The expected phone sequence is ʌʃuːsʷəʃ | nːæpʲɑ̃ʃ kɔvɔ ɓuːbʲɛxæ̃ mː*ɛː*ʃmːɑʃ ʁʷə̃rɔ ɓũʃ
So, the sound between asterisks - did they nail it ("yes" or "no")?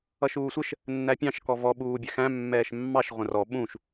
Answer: yes